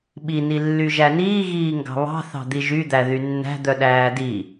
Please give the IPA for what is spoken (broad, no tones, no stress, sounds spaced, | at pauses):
ɓ i n i lː y ʒ æ n iː ɣ iː ŋ ɡ ɑ̤ β ɑ̤ θ ɑ̤ d̪ i ʒ y d̪ æ ð y nː æ̤ d̪ œ ɗ æː d i